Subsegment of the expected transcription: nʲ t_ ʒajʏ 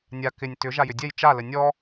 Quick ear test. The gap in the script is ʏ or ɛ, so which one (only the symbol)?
ʏ